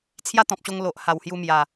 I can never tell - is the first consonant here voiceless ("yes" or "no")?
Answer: yes